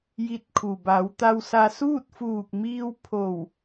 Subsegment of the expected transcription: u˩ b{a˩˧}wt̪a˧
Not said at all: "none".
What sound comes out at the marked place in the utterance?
a˩˧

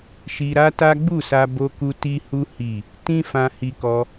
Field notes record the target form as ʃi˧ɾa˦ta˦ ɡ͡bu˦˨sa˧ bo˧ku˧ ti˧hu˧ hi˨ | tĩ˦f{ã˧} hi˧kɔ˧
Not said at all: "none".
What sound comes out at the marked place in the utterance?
ã˧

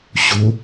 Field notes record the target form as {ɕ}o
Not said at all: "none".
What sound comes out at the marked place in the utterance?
ɕ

